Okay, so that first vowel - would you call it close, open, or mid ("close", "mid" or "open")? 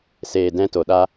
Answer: mid